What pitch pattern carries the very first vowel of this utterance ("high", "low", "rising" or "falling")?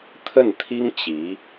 falling